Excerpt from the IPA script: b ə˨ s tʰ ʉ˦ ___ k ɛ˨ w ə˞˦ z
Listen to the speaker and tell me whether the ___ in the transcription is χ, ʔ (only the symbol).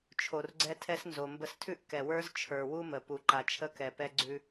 ʔ